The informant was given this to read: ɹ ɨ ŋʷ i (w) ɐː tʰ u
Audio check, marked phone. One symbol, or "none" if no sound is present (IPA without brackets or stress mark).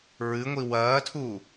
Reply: w